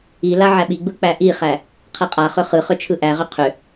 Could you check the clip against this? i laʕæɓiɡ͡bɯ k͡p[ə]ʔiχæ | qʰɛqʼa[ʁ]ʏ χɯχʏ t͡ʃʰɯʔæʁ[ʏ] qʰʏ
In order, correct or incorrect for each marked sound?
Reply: incorrect: æ, incorrect: χ, correct

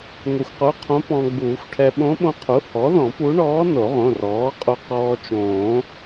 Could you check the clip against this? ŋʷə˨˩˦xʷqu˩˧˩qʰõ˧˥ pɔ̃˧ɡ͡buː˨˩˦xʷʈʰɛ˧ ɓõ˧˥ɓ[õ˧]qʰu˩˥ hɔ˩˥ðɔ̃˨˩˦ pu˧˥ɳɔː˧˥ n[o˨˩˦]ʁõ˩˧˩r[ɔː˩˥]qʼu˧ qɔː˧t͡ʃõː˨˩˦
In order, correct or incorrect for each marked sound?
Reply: correct, correct, correct

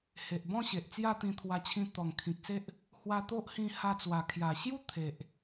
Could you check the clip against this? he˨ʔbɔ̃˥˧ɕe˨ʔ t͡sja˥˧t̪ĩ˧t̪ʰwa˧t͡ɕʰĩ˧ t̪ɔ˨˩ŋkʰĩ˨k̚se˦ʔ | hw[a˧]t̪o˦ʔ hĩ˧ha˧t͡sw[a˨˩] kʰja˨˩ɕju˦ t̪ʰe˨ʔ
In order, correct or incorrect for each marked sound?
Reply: correct, correct

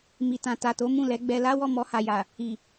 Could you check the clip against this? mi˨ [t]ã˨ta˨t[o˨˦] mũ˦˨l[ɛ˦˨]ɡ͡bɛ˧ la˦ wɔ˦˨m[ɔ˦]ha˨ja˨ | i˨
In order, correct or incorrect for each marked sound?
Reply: correct, correct, incorrect: ɛ˨˦, incorrect: ɔ˧

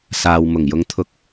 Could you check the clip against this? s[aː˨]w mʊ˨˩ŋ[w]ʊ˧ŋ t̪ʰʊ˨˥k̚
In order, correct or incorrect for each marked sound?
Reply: correct, incorrect: j

